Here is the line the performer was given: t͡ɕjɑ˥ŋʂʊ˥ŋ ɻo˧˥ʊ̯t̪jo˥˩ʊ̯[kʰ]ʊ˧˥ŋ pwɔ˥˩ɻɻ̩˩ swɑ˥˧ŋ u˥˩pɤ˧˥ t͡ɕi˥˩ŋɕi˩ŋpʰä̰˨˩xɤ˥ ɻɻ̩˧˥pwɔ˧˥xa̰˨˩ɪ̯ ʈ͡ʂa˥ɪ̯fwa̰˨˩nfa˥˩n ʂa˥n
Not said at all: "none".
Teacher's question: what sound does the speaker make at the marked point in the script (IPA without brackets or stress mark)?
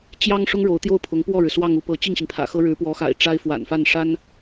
pʰ